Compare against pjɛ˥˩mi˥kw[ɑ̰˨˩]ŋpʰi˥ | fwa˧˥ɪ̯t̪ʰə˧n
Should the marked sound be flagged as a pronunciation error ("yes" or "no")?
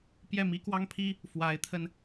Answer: yes